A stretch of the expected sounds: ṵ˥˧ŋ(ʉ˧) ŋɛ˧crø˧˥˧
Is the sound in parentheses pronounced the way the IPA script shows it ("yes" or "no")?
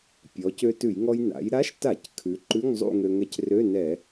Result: no